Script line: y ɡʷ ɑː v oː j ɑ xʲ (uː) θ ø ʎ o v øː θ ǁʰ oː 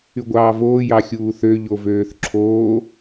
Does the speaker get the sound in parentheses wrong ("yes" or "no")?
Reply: no